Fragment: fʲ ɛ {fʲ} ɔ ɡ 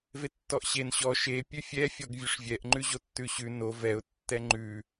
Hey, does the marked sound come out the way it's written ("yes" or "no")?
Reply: yes